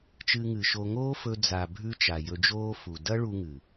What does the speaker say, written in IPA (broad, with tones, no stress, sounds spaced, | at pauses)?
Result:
t͡ʃ ɨ˧ ŋ ɨ˨ ʃ o˧ ŋ oː˦ f ɵ˧ d͡z a˨ bʱ ʉ˧ t͡ʃ a˨ j ɵ˧ d͡ʒ oː˦ f u˨ d ɐ˦ ɭ u˧ ŋ ɨ˨